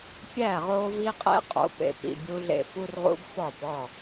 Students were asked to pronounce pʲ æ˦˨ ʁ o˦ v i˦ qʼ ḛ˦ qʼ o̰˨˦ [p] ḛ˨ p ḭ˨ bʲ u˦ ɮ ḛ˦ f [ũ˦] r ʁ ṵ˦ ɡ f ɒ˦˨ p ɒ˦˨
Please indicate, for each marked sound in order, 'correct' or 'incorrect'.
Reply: correct, incorrect: u˦

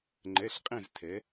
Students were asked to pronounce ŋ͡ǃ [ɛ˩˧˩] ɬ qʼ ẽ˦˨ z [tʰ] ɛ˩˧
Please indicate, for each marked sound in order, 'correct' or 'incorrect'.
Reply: correct, correct

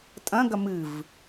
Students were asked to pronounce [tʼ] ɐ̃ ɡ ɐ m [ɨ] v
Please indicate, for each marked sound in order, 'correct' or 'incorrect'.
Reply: correct, correct

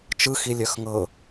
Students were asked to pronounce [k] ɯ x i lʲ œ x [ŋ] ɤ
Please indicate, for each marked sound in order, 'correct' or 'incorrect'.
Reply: incorrect: t͡ʃ, correct

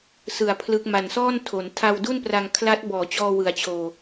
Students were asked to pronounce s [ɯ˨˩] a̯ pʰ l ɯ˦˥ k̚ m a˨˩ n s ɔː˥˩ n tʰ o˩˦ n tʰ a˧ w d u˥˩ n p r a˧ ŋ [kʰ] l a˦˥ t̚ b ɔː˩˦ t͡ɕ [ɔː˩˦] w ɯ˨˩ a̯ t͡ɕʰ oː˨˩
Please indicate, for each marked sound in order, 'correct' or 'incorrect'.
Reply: correct, correct, incorrect: ɔː˧

